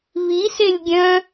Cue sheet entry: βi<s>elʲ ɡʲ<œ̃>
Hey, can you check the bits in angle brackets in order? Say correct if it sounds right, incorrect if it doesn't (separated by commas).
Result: correct, correct